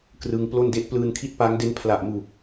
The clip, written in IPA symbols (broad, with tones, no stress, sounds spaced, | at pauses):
k r ɯ˧ ŋ p l o˥˩ n d e˥˩ ʔ p l ɯː˧ n kʰ i˦˥ t̚ p a˦˥ ŋ d e˦˥ n pʰ l a˨˩ ʔ m u˨˩ k̚